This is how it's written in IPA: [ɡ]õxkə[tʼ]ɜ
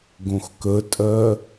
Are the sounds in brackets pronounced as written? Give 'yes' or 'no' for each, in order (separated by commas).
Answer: yes, yes